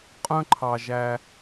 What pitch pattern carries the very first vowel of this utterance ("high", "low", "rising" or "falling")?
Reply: high